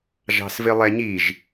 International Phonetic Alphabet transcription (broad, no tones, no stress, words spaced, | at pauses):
ʒɑ̤svɪlˠɛɲiʒ